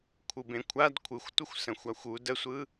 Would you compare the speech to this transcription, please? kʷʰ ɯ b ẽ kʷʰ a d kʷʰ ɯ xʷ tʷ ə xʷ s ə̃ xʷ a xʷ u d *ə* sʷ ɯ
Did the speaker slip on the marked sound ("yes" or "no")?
no